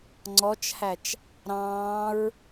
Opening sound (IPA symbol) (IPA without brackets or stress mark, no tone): ŋ͡ǀ